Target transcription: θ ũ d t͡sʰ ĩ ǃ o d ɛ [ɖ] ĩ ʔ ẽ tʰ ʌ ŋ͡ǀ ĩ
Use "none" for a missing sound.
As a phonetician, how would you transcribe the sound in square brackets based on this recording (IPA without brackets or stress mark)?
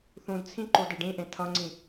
ɖ